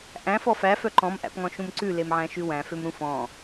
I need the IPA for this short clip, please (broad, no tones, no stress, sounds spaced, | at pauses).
ʔ æ̃ f ɔ f æ f œ ǃ ɔ̃ m ʔ æ̰ p ŋ ɔ̃ ʃ ũ m ǀ ʉ l e m ʕ æ̃ ʃ ʉ w æ̃ f ø m ɾ ũ f ɔ̃